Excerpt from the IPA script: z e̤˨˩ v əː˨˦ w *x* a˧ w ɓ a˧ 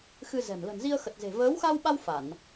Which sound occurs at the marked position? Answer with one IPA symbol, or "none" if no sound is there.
x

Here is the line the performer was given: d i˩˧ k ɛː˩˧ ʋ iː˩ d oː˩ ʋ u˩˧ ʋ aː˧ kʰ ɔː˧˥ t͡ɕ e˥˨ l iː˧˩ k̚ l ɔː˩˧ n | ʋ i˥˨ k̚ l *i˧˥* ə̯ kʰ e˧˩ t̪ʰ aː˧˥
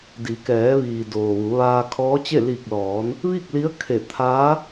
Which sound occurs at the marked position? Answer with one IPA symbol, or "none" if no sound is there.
i˧˥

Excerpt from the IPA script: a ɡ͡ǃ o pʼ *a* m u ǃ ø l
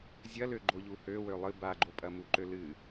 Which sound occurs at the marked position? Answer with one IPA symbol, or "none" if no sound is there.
ɐ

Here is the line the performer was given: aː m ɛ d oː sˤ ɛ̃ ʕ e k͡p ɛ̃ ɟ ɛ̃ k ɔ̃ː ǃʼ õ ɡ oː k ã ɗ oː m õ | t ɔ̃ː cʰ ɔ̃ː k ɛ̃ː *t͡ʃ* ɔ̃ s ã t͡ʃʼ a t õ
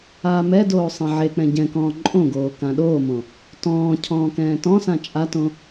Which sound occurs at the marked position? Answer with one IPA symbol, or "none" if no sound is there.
t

